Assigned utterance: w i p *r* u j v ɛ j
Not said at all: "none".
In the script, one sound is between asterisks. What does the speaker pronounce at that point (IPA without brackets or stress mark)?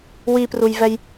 r